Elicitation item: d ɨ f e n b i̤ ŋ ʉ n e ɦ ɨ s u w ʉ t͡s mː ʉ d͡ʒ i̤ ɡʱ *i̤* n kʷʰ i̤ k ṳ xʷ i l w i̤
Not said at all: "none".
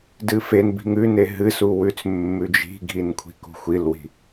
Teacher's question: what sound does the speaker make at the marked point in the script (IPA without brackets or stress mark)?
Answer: i